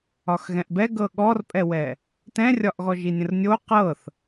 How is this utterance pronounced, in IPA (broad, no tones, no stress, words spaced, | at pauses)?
ɒxɣɛ̃ʔbɛ ɡɤɠɔrpʼɛwɛ | tɛ̃rʲɒʔɣɔʒi nʲə̃rnʲo qɤθ